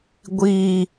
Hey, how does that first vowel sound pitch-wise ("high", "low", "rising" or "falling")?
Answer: low